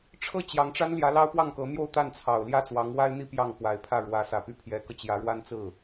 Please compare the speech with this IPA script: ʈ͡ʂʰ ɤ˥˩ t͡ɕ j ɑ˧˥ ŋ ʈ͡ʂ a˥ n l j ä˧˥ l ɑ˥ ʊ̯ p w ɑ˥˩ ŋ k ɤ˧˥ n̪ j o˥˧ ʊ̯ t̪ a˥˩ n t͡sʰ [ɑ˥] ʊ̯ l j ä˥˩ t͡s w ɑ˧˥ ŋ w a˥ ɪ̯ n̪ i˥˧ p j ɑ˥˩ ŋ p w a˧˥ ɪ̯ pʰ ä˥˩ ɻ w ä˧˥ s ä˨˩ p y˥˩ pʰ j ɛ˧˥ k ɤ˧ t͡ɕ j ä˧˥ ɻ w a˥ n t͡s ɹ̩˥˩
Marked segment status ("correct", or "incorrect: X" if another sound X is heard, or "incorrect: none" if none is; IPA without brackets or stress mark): incorrect: ɑ˨˩